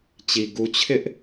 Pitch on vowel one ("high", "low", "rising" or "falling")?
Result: low